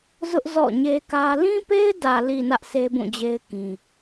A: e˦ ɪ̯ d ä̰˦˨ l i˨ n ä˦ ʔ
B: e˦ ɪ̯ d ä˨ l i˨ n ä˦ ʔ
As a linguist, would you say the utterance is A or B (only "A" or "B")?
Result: B